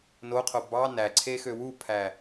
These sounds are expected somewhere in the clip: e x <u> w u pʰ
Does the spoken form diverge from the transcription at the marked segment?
yes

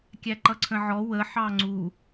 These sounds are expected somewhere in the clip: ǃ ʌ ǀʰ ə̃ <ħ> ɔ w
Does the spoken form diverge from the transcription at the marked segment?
yes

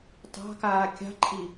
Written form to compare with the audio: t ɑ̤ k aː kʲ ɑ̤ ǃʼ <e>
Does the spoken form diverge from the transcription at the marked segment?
yes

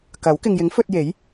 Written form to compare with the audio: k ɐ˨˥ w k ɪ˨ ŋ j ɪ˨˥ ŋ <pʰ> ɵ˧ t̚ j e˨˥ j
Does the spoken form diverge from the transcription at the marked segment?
yes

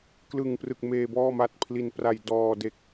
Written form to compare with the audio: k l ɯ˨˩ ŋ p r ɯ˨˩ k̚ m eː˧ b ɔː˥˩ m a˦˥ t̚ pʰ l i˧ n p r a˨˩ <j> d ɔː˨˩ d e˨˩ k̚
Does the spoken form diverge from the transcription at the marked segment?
no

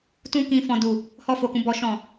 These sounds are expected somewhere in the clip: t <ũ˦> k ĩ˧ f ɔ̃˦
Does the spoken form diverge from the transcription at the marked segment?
no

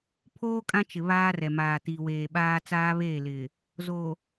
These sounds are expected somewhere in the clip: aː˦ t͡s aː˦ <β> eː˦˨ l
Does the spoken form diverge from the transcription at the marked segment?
no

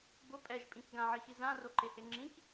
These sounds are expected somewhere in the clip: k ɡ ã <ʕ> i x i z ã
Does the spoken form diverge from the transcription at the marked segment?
no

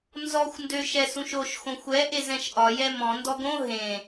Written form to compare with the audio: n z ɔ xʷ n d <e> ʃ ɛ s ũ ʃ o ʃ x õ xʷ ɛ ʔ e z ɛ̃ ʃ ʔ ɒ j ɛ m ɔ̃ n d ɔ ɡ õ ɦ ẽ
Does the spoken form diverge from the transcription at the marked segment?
yes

